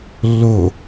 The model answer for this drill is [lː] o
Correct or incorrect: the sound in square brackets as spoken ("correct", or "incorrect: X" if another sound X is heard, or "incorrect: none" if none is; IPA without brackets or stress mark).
correct